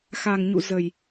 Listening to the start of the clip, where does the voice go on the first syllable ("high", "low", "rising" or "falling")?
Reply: low